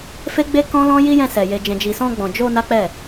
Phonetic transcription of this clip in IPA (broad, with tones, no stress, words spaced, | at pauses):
fe˦ɡ͡be˦kɔ̃˦ lɔ̃˦ ji˦jɛ̃˧sɛ˨ je˨d͡ʒɛ̃˨d͡ʒi˨ sɔ̃˧ɡ͡bɔ̃˨d͡ʒo˧ na˦k͡pɛ˦˨